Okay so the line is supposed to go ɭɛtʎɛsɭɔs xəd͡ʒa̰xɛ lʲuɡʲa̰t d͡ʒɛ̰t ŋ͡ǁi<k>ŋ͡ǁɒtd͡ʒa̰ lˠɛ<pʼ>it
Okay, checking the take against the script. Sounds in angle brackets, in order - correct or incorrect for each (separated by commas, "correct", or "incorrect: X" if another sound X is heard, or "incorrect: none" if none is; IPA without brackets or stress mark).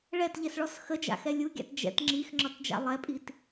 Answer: incorrect: x, correct